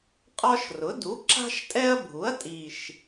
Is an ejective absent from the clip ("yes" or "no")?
no